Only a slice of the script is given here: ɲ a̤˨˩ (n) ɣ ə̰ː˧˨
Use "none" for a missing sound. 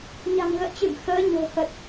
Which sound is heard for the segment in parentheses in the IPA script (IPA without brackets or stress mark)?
ŋ